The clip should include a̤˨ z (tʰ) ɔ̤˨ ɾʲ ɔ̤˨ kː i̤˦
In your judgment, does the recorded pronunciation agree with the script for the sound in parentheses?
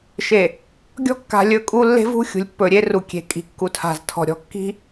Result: yes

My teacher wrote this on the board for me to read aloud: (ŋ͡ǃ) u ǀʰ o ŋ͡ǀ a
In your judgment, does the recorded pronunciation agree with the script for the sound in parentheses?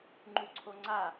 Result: yes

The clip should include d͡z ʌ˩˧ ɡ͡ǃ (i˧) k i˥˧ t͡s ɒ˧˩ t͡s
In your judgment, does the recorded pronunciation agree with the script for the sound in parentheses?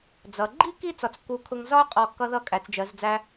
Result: no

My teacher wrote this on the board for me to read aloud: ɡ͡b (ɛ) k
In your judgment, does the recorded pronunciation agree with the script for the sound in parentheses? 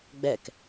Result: yes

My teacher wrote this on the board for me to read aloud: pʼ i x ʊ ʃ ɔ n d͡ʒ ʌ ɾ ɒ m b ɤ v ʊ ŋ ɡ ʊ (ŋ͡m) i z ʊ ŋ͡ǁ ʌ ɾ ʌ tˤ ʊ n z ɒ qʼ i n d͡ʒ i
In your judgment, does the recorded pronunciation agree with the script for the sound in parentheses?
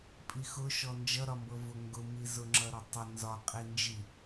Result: no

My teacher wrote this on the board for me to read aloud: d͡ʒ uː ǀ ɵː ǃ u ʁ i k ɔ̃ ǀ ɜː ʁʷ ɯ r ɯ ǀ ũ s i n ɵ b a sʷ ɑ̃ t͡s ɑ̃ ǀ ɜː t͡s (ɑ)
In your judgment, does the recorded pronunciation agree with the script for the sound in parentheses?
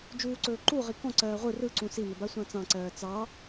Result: yes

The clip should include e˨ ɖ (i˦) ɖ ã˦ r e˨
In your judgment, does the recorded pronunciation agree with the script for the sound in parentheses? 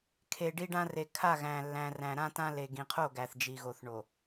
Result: yes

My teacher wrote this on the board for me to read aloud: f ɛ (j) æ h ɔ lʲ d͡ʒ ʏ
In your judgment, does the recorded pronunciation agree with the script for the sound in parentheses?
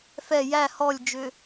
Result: yes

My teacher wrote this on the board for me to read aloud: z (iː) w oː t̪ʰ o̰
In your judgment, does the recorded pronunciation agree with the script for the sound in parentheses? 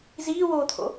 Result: yes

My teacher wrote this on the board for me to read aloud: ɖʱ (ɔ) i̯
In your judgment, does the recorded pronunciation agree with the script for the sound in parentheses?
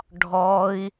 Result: yes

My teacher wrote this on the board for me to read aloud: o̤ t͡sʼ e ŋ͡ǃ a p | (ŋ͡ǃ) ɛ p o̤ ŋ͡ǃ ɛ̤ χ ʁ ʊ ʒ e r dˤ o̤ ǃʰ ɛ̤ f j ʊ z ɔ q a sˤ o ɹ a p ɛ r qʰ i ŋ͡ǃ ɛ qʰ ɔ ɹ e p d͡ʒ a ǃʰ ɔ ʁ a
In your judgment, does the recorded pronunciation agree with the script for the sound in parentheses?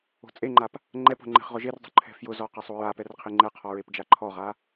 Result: yes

